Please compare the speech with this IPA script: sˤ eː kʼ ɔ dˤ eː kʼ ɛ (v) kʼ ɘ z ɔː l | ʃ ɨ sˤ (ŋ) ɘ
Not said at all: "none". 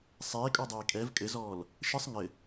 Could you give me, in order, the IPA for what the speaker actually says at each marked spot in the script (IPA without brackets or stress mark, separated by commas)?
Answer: v, ŋ